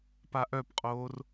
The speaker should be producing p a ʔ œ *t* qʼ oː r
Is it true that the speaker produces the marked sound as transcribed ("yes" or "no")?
no